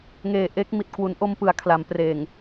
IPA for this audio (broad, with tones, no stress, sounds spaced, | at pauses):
ŋ eː˨˩ ʔ e˦˥ k̚ m i˨˩ t̚ k w u˩˦ n ʔ o˧ m p ɯ˩˦ a̯ kʰ l a˩˦ m p r eː˨˩ ŋ